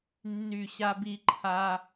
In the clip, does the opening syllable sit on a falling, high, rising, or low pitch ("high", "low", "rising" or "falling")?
falling